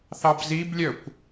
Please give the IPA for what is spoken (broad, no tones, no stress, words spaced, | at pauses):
θɑbziblʲœkʷ